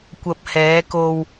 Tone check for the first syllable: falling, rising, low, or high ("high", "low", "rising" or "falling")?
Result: low